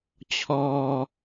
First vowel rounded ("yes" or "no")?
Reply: yes